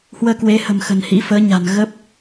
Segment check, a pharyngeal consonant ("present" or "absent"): absent